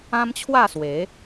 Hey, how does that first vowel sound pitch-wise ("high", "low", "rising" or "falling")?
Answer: high